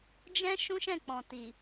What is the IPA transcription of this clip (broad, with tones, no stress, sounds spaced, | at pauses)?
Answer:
d͡ʒ ɛ̃˦ ʃ ũ˦ ʃ ɛ̃˦˨ k͡p ɔ̃˨ t i˨